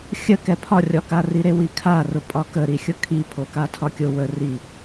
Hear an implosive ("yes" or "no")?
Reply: no